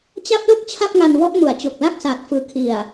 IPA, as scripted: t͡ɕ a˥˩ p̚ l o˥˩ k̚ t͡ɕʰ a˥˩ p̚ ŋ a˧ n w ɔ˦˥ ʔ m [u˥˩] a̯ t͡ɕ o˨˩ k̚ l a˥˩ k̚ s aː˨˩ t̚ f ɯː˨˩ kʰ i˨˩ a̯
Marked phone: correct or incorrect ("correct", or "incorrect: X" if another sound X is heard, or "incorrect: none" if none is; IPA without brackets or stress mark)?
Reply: incorrect: u˩˦